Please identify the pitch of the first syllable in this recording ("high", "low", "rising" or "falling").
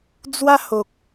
high